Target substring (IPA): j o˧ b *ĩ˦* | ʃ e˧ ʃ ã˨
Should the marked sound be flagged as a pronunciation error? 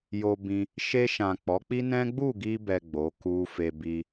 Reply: yes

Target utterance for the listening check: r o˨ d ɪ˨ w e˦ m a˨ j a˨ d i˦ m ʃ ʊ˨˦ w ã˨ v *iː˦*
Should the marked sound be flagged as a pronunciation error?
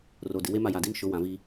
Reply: no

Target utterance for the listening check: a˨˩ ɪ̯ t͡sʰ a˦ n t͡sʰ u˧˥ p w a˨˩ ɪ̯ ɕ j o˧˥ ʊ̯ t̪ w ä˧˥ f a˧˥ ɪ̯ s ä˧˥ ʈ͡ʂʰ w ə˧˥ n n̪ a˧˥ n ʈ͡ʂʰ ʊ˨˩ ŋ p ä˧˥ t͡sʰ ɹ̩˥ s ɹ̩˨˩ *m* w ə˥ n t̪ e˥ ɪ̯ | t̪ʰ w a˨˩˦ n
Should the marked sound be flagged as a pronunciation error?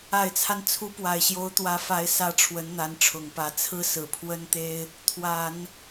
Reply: yes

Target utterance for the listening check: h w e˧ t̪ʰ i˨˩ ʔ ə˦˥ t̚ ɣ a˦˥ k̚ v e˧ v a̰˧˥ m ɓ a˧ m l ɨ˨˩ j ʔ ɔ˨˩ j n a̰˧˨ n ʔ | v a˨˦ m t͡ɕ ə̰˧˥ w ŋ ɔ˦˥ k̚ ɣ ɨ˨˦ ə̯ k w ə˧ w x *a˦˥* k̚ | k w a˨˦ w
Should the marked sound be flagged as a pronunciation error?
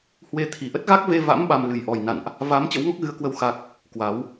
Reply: no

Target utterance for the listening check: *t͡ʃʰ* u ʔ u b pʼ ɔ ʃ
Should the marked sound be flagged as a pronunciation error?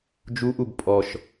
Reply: yes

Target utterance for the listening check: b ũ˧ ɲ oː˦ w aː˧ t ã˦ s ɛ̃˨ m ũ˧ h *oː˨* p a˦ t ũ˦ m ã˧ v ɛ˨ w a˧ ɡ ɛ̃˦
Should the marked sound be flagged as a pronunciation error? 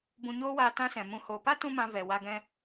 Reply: no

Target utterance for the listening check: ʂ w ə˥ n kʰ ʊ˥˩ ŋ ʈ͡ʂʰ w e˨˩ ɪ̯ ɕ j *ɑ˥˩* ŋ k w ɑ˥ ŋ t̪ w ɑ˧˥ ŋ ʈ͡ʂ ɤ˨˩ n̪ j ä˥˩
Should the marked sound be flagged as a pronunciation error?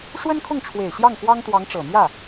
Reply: no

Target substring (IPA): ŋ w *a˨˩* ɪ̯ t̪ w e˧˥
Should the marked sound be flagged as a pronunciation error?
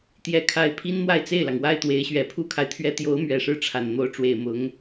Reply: yes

